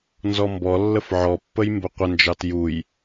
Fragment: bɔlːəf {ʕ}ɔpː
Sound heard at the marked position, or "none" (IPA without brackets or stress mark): ʕ